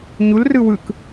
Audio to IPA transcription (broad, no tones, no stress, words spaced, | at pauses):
ɲulrɯ wɯk